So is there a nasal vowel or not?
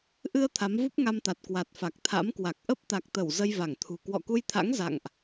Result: no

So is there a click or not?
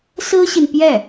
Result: no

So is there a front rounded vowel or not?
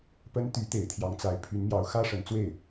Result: yes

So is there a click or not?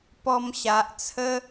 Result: no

